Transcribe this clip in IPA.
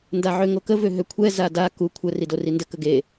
n d a ʕ ø ŋ o k ə v ø ɦ ø kʷʰ ɛ z a d a k u kʷʰ ə r i d o r i n d ə k ə ɡ e

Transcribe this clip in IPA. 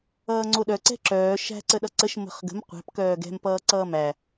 ʌː ŋ͡ǀ o ɗ œ ǀ ɛ̤ ǁ œː ʃ æ̤ ǀ ə ɗ ʌ ǀ ə ʃ m ə̤ χ ɡ ə̤ m qʷ æ̤ p k œː ɡ ɛ̤ m p ʌː ǀ ʌː m æ

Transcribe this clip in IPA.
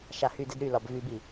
ʃ a h y d ɛ d ɾ y l ɒ b v y b i

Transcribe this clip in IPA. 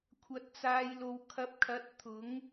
kʷʰ ɐ˨˥ t̚ t͡s aː˨ j l o˨ w kʰ ɐ˨˥ p̚ kʰ ɐ˨˥ t̚ t̪ʰ ʊ˨˥ ŋ

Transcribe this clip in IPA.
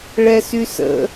ɭ ɛ s y s ə̰

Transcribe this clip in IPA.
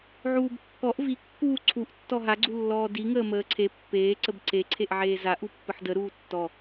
ʕ uː b kː ɔ ʔ v i kː uː ǀʰ u ʔ tː ɔ ɦ a ɡ͡ǀ u lː ɔː d i ŋ əː m əː ǀʰ e pː eː ǀ ə b ǀ e ǀʰ e ʔ ʕ eː z a ʔ u pː ə ħ d ə ɾ uː tː ɔ

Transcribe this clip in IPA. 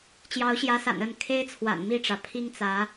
t͡ɕ j ɑ˨˦ ʊ̯ ɕ j ä˨˦ s a̰˨˩ n ə˥˨ n kʰ e˦ ɪ̯ t͡sʰ w a̰˨˩ n m i˥˨ ʈ͡ʂ ä˩ pʰ i˦ ŋ t͡s ä˨˦

